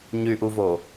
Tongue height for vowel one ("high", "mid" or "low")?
high